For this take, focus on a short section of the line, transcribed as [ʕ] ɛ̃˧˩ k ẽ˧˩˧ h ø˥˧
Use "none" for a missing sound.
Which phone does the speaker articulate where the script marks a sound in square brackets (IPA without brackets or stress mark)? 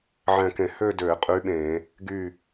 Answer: ʕ